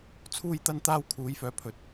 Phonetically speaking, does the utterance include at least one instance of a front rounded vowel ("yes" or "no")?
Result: yes